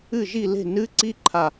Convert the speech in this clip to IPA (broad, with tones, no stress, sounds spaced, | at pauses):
ɨ˥˩ ʒ i˥˩ l e̤˥˩ n ɨ˦˥ ǀ i˦˥ ǃʰ a˧˩